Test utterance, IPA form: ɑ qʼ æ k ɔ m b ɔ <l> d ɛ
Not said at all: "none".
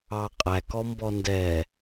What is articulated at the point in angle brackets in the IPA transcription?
n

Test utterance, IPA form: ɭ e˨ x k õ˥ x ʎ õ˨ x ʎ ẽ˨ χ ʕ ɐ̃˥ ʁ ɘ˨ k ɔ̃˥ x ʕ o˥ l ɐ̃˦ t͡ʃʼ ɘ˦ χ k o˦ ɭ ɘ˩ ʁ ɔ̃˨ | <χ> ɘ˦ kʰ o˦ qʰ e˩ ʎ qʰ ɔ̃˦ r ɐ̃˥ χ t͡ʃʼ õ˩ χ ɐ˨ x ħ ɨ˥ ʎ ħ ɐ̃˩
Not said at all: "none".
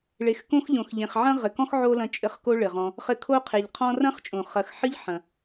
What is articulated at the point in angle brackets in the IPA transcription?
χ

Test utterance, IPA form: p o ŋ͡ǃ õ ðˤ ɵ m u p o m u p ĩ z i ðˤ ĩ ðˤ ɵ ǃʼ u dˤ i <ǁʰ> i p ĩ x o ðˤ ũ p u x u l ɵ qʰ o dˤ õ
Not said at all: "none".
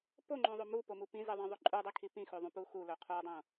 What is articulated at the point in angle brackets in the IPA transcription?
kʰ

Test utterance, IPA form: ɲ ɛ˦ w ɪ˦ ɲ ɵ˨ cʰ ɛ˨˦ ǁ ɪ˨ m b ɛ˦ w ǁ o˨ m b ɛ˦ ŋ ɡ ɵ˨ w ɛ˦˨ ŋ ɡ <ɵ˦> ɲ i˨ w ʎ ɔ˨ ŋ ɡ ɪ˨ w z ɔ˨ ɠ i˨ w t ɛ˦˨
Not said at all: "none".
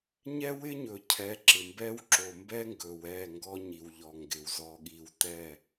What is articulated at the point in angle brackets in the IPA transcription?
ɔ˦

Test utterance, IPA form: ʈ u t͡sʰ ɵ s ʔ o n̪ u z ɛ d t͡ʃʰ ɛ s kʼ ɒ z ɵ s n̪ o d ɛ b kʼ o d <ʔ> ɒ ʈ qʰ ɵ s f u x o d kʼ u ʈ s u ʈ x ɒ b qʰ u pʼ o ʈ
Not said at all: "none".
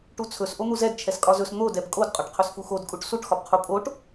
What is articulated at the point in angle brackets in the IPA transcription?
qʼ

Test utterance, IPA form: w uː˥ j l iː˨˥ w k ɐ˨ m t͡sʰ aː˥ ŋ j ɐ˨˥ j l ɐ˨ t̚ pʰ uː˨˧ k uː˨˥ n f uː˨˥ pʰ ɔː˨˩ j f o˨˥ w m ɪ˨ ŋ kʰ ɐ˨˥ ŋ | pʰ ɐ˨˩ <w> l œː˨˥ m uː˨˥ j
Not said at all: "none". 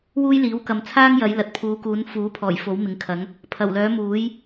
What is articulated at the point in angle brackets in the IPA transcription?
w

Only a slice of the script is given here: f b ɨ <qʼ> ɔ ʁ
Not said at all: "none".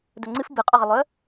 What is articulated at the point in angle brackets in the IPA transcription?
qʼ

